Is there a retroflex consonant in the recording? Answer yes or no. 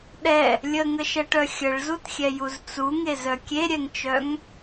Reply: yes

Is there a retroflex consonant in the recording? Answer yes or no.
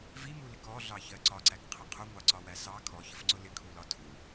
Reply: no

